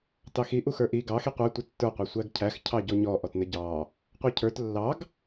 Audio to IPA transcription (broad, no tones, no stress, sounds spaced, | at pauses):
t ɑ x i ʔ u x ə˞ ʔ i ɡ ɑ x i qʷ æ tʷ ə tː ə˞ qʷ ɑ sʷ æ ɡ cʰ æ x cʰ ɑ ɟ ɔ ɲ ɔ ʔ ɔ t n ə ɟ ɑ | qʷ ə˞ cʰ ə˞ t lː ɑ ɡ